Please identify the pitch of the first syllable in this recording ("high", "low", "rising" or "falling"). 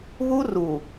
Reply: high